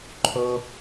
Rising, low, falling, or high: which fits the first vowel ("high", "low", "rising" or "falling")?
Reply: high